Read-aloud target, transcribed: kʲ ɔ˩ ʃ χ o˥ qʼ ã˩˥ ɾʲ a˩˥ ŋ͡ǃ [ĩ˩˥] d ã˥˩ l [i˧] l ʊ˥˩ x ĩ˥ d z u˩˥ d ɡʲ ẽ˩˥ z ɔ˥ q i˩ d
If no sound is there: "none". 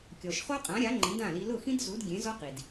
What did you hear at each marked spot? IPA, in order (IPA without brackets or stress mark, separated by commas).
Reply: ĩ˩˥, i˧